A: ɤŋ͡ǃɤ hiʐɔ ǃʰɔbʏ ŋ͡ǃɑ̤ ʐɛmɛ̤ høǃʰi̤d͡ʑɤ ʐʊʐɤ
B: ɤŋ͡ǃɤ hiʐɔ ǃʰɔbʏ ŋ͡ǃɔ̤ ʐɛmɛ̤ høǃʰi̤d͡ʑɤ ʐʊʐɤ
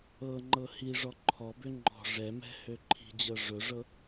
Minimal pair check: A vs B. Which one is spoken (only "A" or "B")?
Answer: B